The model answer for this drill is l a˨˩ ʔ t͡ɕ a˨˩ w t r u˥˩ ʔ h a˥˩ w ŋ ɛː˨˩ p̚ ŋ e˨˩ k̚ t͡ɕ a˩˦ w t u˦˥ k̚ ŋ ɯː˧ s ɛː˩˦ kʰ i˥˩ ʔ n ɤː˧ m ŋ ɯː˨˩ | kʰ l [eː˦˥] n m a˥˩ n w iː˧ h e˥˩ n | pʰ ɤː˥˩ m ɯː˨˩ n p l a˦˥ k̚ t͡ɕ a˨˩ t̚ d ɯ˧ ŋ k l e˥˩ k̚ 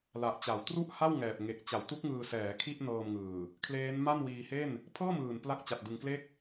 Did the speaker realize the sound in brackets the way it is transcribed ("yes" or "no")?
yes